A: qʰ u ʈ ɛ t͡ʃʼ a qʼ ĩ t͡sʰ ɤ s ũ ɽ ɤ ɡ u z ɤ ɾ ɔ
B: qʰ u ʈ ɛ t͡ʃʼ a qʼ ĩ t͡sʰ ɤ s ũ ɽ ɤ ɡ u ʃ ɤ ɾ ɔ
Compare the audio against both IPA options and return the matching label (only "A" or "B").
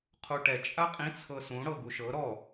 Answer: B